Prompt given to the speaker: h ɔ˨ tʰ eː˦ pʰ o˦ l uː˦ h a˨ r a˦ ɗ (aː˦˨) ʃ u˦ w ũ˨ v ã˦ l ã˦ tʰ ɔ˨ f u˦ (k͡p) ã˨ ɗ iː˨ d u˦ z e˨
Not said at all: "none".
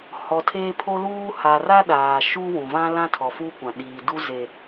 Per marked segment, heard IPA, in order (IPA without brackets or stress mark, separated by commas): aː˨, kʷ